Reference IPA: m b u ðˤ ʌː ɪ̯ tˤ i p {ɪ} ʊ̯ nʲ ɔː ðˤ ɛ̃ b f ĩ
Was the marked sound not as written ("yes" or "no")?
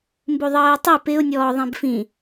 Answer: no